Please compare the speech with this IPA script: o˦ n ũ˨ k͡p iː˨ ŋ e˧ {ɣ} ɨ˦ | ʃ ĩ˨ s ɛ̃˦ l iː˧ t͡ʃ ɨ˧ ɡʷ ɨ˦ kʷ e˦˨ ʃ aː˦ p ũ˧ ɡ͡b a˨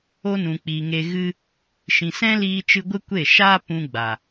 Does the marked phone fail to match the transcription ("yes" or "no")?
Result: no